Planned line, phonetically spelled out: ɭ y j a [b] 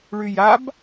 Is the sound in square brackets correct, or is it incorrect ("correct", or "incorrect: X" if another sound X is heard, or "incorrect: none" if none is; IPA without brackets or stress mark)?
correct